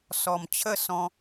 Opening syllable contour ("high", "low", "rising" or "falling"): low